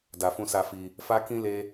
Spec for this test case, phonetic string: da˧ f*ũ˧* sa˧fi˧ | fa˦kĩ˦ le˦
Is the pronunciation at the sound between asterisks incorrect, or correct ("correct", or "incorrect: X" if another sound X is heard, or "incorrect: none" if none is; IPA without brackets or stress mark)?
correct